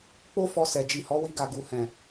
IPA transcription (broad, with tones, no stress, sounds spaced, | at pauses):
k͡p o˦ f ɔ˧ s ɛ˨ d͡ʒ i˨ h ɔ˨˦ w i˧ ɡ a˨ ɡ u˨ h ɛ̃˨